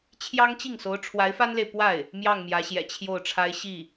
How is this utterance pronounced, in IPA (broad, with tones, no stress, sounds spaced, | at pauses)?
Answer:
t͡ɕʰ j ɑ˥ ŋ t͡ɕ i˥˩ ŋ s o˧˥ ʊ̯ ʈ͡ʂʰ w a˧˥ ɪ̯ f a˥ n l e˨ ɪ̯ p w a˥˩ ɪ̯ | m j ɑ˥˩ ŋ m j ä˧˥ ɕ j ɛ̰˨˩ t͡ɕʰ j o˥˩ ʊ̯ ʈ͡ʂʰ a˥ ɪ̯ ɕ i˥˩